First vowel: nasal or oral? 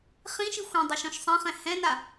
nasal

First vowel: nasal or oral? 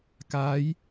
oral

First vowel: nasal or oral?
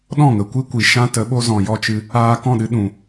nasal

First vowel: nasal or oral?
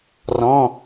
nasal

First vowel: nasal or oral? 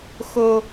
oral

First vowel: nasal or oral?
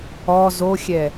oral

